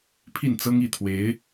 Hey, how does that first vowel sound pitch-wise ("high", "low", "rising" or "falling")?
falling